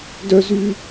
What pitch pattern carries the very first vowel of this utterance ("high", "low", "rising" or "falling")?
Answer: high